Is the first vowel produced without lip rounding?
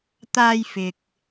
yes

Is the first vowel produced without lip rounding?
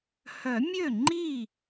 no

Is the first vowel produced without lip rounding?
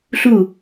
no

